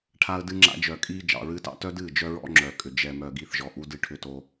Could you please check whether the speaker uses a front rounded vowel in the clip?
yes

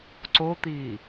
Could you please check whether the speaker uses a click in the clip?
yes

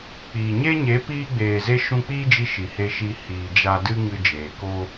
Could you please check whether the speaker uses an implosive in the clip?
no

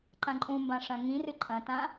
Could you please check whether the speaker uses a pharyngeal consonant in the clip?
no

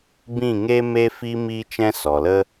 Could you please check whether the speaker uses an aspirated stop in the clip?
no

